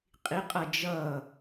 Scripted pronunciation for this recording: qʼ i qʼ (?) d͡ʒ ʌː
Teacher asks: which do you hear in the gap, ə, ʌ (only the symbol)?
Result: ʌ